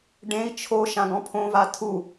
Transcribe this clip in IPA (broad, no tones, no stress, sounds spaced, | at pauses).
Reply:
ɖ ẽ i̯ t͡ʃʰ o ʃ ã ɡ ɔ̃ pʰ õ v a tʰ u